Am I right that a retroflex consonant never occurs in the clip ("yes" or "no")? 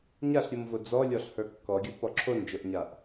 yes